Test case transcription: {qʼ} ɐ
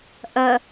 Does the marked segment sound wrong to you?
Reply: yes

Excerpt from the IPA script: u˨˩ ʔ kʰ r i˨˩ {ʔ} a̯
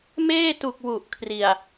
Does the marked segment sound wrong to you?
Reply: yes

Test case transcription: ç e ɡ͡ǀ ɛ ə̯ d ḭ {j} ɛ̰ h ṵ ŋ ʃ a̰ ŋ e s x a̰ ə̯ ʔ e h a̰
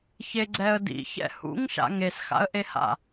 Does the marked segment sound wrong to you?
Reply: yes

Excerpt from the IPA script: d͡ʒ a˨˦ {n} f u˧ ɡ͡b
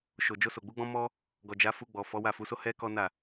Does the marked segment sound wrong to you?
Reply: yes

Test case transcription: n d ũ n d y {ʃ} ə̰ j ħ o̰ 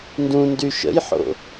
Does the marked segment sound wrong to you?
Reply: no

